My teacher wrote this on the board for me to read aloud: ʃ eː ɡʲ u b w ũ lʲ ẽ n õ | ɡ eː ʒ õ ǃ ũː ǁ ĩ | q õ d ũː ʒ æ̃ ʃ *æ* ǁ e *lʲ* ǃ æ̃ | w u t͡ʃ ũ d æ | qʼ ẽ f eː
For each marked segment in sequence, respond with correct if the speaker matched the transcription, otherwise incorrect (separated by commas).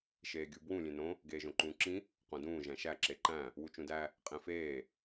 correct, incorrect